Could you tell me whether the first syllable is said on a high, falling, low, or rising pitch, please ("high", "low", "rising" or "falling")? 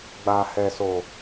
low